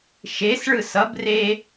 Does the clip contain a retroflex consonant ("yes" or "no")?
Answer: yes